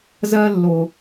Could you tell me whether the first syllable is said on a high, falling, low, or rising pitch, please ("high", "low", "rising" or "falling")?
high